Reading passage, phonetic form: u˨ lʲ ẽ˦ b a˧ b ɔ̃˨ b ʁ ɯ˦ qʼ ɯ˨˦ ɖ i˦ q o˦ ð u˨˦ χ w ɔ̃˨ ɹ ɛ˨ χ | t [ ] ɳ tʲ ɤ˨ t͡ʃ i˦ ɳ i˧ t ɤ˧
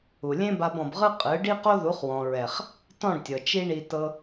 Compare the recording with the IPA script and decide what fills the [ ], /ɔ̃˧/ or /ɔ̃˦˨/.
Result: ɔ̃˦˨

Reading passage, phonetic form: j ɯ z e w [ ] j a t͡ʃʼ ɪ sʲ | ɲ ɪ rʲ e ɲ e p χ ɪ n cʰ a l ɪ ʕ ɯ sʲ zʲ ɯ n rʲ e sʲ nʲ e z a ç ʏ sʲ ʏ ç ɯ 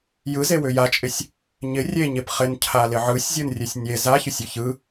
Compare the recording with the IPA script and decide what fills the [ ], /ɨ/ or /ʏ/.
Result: ʏ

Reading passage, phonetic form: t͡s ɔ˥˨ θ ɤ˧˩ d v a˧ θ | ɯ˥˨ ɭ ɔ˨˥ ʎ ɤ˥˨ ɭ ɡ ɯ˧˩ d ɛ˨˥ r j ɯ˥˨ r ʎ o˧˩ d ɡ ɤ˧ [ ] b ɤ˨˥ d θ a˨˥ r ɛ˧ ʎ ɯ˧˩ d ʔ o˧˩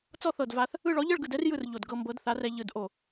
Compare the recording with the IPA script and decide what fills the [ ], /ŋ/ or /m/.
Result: m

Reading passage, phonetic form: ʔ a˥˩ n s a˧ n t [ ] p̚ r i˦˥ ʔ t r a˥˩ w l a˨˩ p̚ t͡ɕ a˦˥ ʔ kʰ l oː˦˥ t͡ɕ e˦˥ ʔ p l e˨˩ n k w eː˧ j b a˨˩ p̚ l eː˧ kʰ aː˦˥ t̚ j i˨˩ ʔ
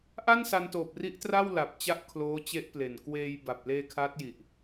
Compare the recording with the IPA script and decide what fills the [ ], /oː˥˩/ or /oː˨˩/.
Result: oː˨˩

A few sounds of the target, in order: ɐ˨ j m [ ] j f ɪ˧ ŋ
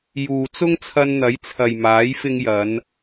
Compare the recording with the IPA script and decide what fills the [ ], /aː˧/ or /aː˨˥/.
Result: aː˨˥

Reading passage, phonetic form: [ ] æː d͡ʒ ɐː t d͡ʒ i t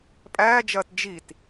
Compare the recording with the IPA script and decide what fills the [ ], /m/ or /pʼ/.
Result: pʼ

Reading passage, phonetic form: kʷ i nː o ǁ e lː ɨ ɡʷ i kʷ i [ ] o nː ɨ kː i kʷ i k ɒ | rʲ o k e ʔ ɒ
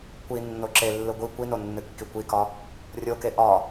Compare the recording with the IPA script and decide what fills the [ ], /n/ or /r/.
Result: n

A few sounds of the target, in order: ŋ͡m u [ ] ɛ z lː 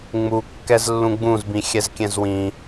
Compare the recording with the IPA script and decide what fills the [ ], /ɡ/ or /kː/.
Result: kː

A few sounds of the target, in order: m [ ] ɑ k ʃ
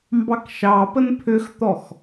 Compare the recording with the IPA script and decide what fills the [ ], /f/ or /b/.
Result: b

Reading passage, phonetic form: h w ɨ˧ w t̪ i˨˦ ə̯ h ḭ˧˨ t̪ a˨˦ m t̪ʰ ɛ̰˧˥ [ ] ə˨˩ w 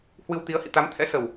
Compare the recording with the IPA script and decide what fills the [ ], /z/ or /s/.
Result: s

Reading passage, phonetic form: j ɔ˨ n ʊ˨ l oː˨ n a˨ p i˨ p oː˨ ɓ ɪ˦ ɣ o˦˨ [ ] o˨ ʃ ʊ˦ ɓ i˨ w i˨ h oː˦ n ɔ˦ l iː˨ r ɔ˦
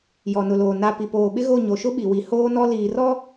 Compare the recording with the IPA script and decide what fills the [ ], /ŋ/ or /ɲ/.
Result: ɲ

